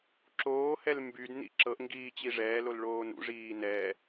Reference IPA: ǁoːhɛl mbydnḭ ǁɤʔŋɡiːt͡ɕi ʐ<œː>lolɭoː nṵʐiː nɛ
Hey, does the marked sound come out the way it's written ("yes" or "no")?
no